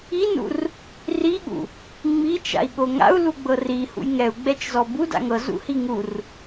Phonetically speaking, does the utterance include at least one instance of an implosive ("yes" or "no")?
yes